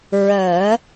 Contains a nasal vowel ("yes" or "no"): no